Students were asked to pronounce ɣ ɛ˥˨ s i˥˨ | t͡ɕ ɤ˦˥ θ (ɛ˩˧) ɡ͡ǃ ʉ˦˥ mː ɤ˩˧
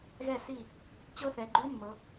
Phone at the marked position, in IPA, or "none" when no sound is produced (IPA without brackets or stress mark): ɛ˩˧